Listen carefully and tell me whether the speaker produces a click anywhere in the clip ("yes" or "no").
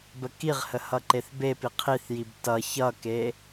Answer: yes